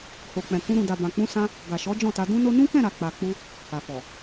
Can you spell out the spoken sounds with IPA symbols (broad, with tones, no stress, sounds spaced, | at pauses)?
h o˨ k͡p ɛ̃˨ k ũ˧ ɾ ũ˨ d a˨ b ã˨ k͡p ũ˧ s ã˧ | ɡ a˨ ʃ ɔ˨˦ d͡ʒ ɔ̃˦˨ t a˧ d ũ˦ n o˦ n ũ˦ k ɛ̃˦˨ ɾ a˨ k͡p a˨ k͡p u˧ | h a˨ f ɔ˨